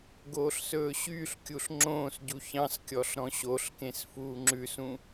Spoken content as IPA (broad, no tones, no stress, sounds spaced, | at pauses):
ɡ oː ɬ s ɵː ɕ yː ɬ kʲ u ɬ ŋ͡ǁ õː s ɟ u ç ɑ̃ s kʲ ɔ ɬ ɾ ɔ̃ ɕ o ɬ k ẽ s f uː ŋ͡ǁ ʉ s ũ